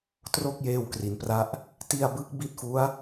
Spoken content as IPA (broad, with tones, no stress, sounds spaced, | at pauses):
t r o˥˩ k̚ j eː˧ w k r i˩˦ n p r a˦˥ ʔ | t i˧ a̯ b ɯ˦˥ k̚ b i˦˥ t̚ f u˦˥ a̯